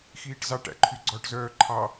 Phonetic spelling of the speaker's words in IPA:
x iː ʈ z ɑ ʈ æ̰ ǃʰ y ɡ͡ǀ ɔ ʈ z œː ǃʰ ɑ

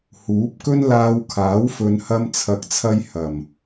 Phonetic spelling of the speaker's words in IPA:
h uː˨˥ p̚ k ɵ˥ n l aː˧ w kʰ aː˨˥ w f ɵ˨˧ n h ɐ˧ m t͡sʰ ɐ˨ k̚ t͡sʰ ɐ˧ j h ɐ˨˩ m

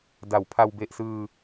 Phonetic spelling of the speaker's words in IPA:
d a˩˦ w pʰ a˧ w b e˨˩ ʔ s ɯː˧

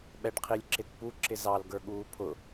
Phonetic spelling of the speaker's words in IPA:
ɓ ɛ ɖ qʰ i lʲ ǁ ɪ t p u ǁ ɪ z ɑ l ɡ ə˞ ɠ uː pʰ ʊ

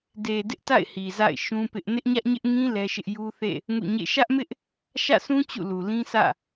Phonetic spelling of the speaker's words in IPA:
d e˨ d ɪ˦ ʔ t a̰˦˨ ɪ̯ h i˨ z a̰˦˨ ɪ̯ ʃ ũ˦ p ɪ˦ ʔ n ɪ˦ ʔ ɲ ä˦ ʔ ɲ ɪ˦ ʔ ŋ ĩ˦ l ɛ˦ ʃ ɪ˦ ʔ j u˦ θ ḛ˦˨ | ŋ ṵ˦˨ ɲ ḛ˦˨ ʃ ä˦ ʔ m ɪ˦ ʔ | ʃ ä̰˦˨ sʰ ũ˦ t͡ɕ ṵ˦˨ l u˨ l ĩ˦ s ä̰˦˨

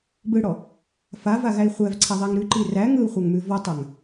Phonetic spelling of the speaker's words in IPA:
b ɯ ɽ ɔ | f a v a ɣ æ i̯ χʷ æ v ǀʰ a ðˤ a ŋ ɾ ʉ ǃ i r æ ŋ ɯ u̯ χʷ a ŋ m ʉ v ɔ tˤ a ŋ

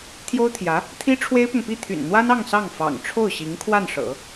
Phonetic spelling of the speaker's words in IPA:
t̪ʰ j o˥ ʊ̯ t̪ʰ j ä˧˥ | t̪ʰ i˥ ʈ͡ʂʰ w e˥ ɪ̯ p ʊ˨ ŋ p i˥˩ t̪ʰ y̰˨˩ n n̪ w a˥ n ɑ˥˧ ŋ s ɑ˥˩ ŋ f ɑ̰˨˩ ŋ ʈ͡ʂʰ o˥˩ ʊ̯ ɕ i˧˥ ŋ kʰ w a˥˩ n ʂ ɤ̰˨˩˦

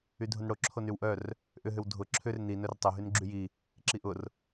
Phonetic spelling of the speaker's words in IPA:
y dʱ ʊ n ɽ o ǁʰ o n y w ʔ œ r | ʔ ʏ ɦ ʏ w dʱ ʊ ǁʰ ʏ r n i n œ r tˤ œ ɦ y n ɡ͡ǁ y j i | ǁ i ʔ ʊ r

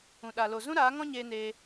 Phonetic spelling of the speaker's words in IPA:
ũ˨ ɗ a˨ l o˨ z ũ˦ ɾ aː˨˦ ŋ ɔ̃˦ ɲ eː˧ n eː˧

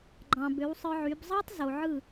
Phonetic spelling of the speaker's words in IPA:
ɡ͡ǃ ɑ̃˨ b ø˨˦ w sˤ ɯ˧ ʕ y˨˦ b zˤ ɑ˦ tˤ z o˨ ʕ ɯ˦˨

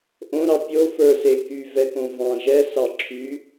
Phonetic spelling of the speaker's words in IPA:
ʔ õ ɾ ɑ pʲ o f ə˞ s e k y v ɛ k õ v ɑ̃ ʒ ɛ s ɑ ǁʰ y

